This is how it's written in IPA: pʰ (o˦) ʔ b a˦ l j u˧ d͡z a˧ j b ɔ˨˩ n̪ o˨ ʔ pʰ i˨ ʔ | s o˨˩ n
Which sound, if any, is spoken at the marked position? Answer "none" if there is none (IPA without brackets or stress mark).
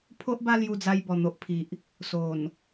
o˦